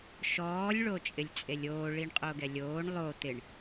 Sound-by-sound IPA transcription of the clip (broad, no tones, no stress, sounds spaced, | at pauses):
ʃ ɔː lʲ ɭ o t͡ʃʼ ɪ lʲ t͡sʼ e lʲ oː ɭ i ɳ qʼ o ɡ ɛ lʲ oː ɳ lˠ o t̪ ɪ ɳ